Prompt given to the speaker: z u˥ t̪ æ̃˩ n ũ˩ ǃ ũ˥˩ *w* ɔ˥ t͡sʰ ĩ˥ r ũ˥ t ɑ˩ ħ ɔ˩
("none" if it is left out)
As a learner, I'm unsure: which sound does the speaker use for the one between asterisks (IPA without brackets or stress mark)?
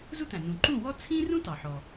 w